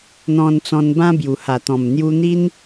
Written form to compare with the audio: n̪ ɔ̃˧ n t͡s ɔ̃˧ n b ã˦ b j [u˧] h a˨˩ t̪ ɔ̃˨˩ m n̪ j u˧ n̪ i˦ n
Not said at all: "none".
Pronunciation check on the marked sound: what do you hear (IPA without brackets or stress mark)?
u˨˩